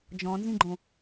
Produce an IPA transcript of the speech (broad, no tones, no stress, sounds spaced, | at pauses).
d͡ʒ ɔ̃ n z ĩ ɡ͡ǃ õ